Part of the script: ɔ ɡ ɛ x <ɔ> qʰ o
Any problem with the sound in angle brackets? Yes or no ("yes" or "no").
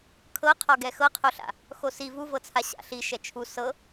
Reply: yes